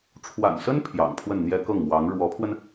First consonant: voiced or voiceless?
voiceless